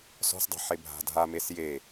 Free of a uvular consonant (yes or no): yes